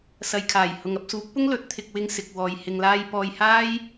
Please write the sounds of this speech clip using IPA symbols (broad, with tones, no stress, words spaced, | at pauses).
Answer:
sɐ˨jkʰaː˨˩j hʊ˨ŋɐ˧p̚suː˨˥k̚pʊ˥ŋ lɵ˨˥t̚t̪ʰɪ˧k̚wɪ˧ŋ sɪ˨k̚wɔː˨j hɪ˨ŋlaː˧j pɔː˧jhaː˥j